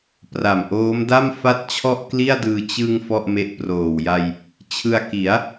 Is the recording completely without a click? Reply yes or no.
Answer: yes